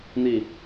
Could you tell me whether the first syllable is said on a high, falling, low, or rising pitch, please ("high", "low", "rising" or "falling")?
falling